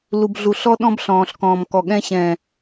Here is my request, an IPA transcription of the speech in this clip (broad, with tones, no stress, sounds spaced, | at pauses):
l u˨ b ɮ u˨ ɬ ɔ˦ ɗ ɔ̃˦ b ɬ ɔ̃ː˨ ɬ k ɔ̃ː˨ m k ɔ˨ ɠ ɛ̃˧ ɕ ɛ̃ː˨